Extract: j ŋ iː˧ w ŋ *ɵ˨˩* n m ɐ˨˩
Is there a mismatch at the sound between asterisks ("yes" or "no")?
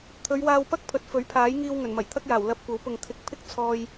no